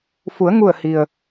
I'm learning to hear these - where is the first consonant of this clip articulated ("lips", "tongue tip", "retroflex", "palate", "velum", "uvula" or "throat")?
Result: lips